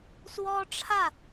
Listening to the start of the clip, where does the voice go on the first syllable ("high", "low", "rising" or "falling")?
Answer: high